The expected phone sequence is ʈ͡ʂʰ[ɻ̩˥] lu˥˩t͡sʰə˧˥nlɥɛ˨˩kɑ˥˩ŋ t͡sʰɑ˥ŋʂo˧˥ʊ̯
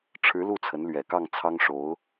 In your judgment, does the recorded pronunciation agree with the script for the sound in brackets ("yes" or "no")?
no